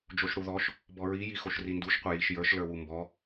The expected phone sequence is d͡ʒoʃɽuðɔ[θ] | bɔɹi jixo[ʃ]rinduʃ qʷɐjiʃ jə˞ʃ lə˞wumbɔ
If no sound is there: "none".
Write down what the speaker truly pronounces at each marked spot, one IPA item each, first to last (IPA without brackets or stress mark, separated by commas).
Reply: ʃ, ʃ